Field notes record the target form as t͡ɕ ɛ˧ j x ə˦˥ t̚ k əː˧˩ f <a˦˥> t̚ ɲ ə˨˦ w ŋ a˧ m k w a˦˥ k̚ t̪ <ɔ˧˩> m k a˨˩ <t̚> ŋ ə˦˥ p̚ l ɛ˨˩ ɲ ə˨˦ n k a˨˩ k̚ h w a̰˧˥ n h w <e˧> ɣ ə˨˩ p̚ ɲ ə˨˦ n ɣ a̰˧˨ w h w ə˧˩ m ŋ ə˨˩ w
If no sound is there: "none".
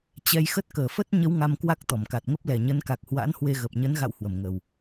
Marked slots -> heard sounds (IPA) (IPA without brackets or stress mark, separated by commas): ə˦˥, ɔ˧˩, t̚, e˧